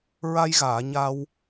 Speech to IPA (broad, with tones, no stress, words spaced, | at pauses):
ɹa˧jɣaː˨˩˨ ɲa˧w